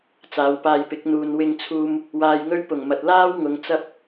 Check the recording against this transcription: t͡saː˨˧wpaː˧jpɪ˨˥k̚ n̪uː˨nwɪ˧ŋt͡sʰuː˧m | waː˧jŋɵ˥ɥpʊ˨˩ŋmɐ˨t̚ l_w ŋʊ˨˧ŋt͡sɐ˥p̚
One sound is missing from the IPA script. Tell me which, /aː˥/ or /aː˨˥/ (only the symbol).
aː˥